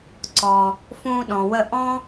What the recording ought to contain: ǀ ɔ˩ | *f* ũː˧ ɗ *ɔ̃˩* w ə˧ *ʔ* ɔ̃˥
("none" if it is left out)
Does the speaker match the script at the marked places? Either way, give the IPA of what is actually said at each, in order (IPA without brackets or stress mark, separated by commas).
f, ɔ̃˩, ʔ